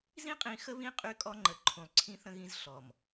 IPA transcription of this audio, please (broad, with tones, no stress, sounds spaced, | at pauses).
z ĩ˦ qʼ ĩ˨ x ə˦ β ĩ˦ qʼ y˦ kʼ ɔ˦ ŋ͡ǃ ə˨ ǃʰ ũ˨ lˠ ǀʰ ĩ˦ θ ə̃˦ ɣ ĩ˦ z ɬ ɔ˨ m